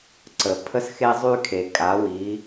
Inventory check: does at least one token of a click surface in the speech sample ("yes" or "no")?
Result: yes